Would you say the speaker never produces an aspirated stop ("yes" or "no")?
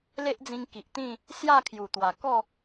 no